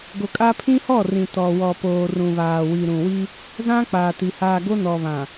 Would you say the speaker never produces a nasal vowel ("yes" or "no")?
no